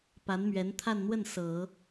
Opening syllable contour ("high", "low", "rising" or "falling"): rising